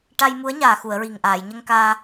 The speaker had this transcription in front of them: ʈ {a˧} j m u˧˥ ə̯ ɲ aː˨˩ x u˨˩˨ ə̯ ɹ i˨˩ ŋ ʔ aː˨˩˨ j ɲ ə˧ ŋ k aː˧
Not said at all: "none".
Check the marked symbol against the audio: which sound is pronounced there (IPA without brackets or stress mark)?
a˧